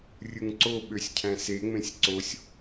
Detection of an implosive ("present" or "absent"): present